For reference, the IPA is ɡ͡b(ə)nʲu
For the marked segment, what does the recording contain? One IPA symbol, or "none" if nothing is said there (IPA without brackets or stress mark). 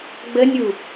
ə